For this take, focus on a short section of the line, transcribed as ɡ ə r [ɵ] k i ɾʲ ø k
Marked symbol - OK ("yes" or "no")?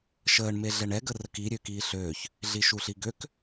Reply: no